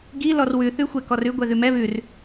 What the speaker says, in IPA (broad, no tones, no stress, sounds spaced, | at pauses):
ɡ i l ɔ r w ʉ θ ʉ xʷ ɛ k ɔ r ʉ ɡʷ ɛ ð ʉ m ɛ β ʉ r